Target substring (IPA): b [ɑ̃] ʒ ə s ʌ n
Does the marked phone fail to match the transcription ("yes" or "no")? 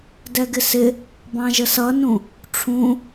no